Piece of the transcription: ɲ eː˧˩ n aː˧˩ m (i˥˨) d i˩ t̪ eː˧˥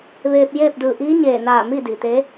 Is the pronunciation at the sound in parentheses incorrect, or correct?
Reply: correct